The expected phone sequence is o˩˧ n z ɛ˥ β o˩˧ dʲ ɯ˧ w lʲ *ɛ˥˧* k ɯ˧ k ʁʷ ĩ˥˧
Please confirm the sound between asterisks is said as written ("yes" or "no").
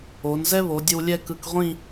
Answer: yes